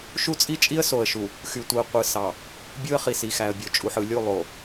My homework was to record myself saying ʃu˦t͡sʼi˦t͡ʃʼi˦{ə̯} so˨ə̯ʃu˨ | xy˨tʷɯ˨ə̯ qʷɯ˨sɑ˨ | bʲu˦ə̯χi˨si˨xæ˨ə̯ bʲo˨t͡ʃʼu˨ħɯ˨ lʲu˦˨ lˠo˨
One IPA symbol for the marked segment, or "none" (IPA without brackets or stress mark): ə̯